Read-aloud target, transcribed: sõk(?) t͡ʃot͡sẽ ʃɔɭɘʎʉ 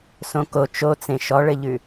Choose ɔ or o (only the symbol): o